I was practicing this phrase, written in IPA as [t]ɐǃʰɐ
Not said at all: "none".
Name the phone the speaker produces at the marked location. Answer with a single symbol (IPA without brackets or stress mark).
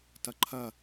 t